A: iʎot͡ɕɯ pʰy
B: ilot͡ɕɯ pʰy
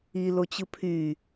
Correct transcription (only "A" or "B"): B